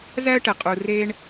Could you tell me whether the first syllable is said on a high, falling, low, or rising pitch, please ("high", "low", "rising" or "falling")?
high